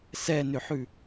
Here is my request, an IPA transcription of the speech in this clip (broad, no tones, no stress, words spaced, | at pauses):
sɛnʏħʉ